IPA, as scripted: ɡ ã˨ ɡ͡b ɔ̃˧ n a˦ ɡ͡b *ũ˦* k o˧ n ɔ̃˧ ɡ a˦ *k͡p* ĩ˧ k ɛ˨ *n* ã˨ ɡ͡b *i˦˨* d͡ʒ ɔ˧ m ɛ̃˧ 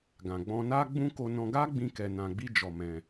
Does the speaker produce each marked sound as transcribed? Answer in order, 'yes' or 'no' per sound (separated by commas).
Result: yes, no, yes, no